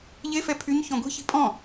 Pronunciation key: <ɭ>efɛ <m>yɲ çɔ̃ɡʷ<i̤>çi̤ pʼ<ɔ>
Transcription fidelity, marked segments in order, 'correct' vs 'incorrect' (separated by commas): incorrect, incorrect, correct, incorrect